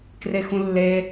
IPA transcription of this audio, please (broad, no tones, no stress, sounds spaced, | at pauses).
k r e x ũ lː e